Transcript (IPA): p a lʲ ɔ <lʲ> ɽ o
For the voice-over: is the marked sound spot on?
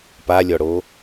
no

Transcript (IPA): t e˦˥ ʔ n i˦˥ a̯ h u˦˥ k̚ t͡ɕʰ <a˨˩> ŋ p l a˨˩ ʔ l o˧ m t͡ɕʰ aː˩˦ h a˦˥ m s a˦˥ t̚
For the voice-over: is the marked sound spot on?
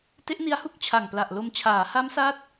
yes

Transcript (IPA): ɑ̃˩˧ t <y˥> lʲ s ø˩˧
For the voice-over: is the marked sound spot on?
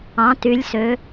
no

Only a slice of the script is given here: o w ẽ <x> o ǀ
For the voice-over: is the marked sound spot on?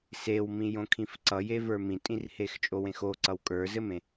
yes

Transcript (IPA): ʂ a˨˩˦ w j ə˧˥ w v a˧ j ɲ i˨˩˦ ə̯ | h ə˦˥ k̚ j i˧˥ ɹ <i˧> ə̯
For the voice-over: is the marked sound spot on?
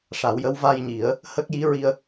yes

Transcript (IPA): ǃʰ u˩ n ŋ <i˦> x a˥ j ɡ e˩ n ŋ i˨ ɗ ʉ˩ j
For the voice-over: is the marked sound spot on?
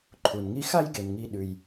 yes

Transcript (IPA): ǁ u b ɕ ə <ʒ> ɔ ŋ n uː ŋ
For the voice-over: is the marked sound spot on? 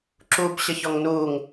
no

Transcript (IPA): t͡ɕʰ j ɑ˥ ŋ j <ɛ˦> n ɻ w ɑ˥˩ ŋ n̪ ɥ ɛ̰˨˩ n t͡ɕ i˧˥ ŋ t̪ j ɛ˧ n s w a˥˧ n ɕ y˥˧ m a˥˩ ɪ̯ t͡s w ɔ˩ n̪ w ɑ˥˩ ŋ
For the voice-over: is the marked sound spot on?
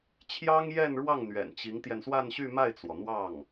no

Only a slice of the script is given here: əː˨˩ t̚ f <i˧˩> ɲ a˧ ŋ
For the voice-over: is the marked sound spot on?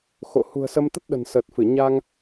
no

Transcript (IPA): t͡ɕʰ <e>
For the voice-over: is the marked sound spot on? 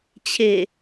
yes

